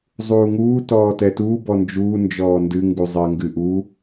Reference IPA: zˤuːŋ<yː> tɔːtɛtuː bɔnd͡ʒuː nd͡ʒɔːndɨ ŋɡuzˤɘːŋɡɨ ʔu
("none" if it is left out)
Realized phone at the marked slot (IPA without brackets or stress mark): uː